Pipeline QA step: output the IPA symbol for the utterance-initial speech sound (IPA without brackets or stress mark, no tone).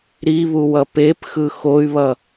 ɾ